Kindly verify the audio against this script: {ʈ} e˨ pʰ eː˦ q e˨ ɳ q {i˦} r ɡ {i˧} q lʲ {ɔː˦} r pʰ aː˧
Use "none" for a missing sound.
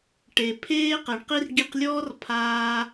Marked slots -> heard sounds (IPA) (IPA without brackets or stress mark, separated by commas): ʈ, i˦, i˧, ɔː˦